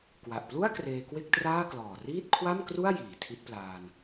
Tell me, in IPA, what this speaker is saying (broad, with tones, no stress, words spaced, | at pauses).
kwa˨˩ʔplu˥˩a̯ kreː˧kwe˥˩k̚traː˥˩klɔː˨˩ riː˥˩t̚kʰwa˥˩mkru˥˩a̯ jiː˩˦tʰi˦˥t̚plaː˧n